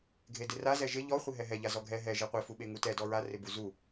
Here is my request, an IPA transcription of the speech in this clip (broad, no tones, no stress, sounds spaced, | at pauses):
ɡʱ e d ɪ r a z ɛ ʒ ɪ ʎ ɔ χʷ ɪ ɦ ɛ ɦ ɛ ʎ a z ɔ ɡʱ ɛ ɦ ɛ ʒ e qʷ e f u ɓ e ŋ u t ɛ d ɔ ɹ a r ɪ b u z u